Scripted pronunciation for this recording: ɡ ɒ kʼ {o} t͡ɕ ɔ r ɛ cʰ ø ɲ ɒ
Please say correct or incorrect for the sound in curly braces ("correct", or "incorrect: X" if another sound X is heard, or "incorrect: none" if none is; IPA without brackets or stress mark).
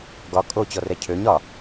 correct